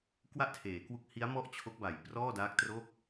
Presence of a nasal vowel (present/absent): absent